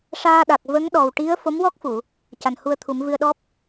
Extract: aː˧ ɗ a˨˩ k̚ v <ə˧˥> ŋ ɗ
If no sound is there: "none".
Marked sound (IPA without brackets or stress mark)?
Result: ə˧˥